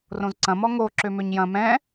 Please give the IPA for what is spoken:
r õ z ǀ ɐ̃ m ɔ ŋ o ǁ ø m ø ɲ j ɐ̃ m ɛ̃

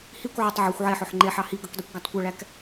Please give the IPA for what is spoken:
h i kʷ ʕ ɵ tˤ ʕ ɵ xʷ ʕ ɛ ħ ɵ ħ ŋ͡ǃ e ħ ɑ h i ɡ ɵ k dˤ i kʷ ɡ æ tˤ kʷ ɛ ɭ æ k

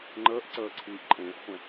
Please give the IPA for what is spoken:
ŋ͡ǃ əː ʔ ǀ əː ǀʰ iː ʔ ǃʼ ẽː ʔ χʷ ẽ

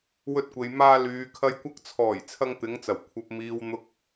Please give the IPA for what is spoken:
w ɵ˧ t̚ kʷ e˨ j m aː˧ l yː˨ kʰ ɐ˧ j kʷ ɐ˧ k̚ t͡sʰ ɔː˨˩ j t͡sʰ ɐ˧ ŋ t̪ ɪ˨˧ ŋ t͡s ɐ˨˩ w kʷʰ ɐ˨ p̚ m iː˨ w n̪ ʊ˨ k̚

